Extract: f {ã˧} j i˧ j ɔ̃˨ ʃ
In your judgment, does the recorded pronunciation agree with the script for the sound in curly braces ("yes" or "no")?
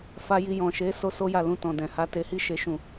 no